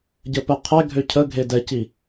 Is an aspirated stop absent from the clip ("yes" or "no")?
no